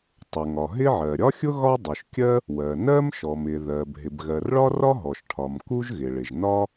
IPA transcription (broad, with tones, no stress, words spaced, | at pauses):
tˤʊ˩ŋɒ˩ɦɪ˥ʕɜ˩ ɾʲɒ˥xʲʊ˥ ɣɒ˥dˤu˩ʃkʲɜ˥ | wɜ˩ nɜ˥mʃɔ˩m ɪ˩ ðɜ˩b ɦɪ˩bɣɜ˩rɭɒ˥rɒ˥ ɦɔ˩ʃʈʰɒ˩m ku˥ʒɣɪ˩ɭɪ˩ʒ nɒ˥